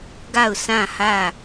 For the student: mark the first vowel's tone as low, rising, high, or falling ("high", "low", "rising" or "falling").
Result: falling